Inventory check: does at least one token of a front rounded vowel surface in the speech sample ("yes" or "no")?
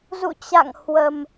no